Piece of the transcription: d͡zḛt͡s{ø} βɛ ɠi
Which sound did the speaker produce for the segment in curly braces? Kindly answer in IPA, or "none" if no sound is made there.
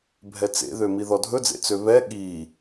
ø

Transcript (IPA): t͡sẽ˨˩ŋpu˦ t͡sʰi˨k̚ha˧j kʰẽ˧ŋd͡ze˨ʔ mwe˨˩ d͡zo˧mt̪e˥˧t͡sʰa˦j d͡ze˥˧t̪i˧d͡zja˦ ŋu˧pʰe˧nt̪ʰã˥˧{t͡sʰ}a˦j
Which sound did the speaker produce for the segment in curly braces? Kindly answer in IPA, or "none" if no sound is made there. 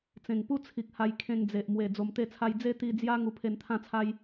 t͡sʰ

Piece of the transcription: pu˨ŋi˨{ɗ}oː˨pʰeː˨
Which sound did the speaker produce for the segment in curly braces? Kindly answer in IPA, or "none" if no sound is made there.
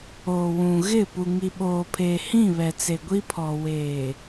ɓ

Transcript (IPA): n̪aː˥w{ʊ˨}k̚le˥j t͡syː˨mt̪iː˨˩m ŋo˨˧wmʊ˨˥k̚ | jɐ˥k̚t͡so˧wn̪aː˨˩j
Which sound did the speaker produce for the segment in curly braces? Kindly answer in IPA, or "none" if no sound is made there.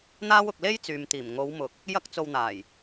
ʊ˧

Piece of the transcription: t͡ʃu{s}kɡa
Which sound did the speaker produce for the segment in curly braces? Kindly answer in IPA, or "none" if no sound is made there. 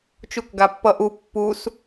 none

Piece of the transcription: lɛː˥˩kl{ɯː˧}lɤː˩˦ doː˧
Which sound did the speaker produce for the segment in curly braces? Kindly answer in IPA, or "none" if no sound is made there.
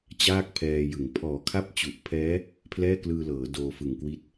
ɯː˧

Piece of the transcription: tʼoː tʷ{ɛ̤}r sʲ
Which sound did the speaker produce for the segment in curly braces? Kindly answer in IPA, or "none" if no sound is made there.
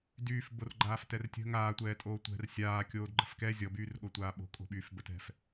ɛ̤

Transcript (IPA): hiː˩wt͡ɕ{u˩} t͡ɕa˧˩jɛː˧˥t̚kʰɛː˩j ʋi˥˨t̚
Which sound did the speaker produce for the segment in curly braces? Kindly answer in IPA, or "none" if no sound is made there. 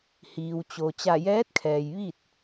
o˩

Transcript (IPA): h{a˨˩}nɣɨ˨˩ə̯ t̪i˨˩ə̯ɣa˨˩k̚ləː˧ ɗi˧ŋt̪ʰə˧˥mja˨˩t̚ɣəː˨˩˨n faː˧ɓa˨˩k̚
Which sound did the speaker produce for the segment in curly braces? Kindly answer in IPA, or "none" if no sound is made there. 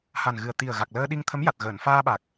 a˨˩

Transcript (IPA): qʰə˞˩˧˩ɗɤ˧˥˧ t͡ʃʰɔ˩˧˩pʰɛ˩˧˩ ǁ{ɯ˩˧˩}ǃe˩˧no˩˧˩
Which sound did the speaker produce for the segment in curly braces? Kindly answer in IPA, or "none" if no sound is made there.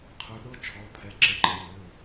ə˩˧˩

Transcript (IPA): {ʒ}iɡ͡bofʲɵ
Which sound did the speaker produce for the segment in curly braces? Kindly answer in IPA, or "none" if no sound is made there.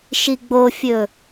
ʃ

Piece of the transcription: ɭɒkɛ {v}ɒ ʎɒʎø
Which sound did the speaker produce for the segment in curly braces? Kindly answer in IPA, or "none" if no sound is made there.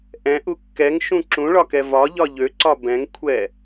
v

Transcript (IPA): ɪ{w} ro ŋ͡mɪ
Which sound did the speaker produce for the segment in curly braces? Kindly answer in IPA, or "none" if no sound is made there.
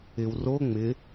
w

